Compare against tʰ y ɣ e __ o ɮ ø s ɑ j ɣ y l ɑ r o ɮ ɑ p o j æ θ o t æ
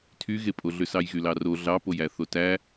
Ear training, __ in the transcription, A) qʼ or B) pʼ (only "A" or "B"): B